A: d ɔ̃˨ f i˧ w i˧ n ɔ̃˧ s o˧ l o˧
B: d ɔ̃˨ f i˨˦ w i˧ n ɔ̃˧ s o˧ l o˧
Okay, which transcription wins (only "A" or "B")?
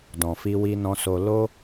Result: A